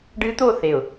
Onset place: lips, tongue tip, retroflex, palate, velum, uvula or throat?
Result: retroflex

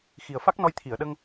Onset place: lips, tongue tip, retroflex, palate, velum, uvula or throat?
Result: velum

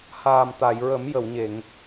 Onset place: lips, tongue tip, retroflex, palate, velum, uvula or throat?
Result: throat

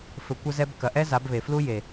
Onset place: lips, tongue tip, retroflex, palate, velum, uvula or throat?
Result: lips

